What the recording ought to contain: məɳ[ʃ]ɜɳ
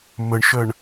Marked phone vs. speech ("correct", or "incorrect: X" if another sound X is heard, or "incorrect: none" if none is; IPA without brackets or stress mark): correct